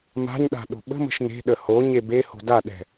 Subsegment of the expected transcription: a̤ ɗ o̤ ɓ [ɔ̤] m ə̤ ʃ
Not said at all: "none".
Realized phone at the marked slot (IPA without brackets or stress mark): ə̤